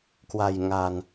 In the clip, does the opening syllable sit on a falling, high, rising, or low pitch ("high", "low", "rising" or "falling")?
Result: low